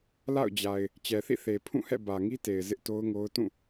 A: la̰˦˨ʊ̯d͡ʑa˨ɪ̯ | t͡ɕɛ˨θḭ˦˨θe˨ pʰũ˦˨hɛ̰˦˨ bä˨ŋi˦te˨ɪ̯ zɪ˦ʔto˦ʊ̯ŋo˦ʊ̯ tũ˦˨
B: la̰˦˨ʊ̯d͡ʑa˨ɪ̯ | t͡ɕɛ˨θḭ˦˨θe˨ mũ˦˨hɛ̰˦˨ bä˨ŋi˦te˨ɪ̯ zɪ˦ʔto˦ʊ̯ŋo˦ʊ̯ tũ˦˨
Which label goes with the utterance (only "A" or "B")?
A